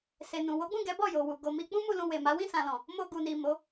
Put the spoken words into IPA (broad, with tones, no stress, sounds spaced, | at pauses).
s e˨ n ũ˨ w o˨˦ ɡ͡b ũ˦˨ ɡ ɛ˨˦ b ɔ˦˨ j o˨ w u˨ ɡ o˨ m i˧ k͡p ũ˦ m u˧ l ũ˧ w e˨ m a˨˦ w ĩ˦˨ s ã˨ l ɔ̃˨ | m o˧ ɡ u˨ n i˨ m o˨˦